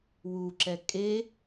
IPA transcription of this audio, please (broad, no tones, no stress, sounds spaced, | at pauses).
w u ǁ ɛ kʼ e